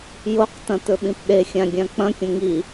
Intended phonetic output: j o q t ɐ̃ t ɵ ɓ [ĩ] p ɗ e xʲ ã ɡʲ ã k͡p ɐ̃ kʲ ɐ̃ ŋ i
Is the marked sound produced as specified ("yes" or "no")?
yes